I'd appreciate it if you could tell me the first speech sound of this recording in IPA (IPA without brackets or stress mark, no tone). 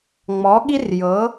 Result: ŋ͡m